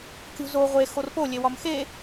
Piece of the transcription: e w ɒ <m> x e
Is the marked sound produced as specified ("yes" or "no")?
yes